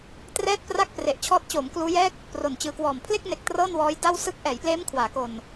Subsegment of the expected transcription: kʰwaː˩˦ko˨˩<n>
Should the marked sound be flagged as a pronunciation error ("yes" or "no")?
no